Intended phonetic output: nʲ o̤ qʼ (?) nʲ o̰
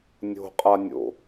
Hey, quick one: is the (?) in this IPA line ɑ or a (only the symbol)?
a